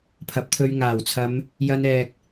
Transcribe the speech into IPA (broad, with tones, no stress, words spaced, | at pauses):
pʰɐ˨˥p̚t̪ʰɵ˧ɥ ŋaː˨˩wt͡sʰɐ˨˧m | jɐ˧nɛː˨k̚